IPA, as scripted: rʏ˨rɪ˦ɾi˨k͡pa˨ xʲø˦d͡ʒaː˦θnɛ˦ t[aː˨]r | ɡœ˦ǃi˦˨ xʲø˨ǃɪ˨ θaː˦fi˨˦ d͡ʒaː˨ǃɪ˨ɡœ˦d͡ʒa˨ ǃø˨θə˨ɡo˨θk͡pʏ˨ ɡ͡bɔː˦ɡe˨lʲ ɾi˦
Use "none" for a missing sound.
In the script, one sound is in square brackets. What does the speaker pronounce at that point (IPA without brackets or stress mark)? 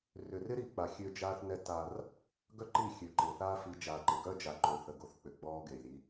aː˦